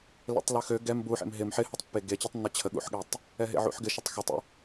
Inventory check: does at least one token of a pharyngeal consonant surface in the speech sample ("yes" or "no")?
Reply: yes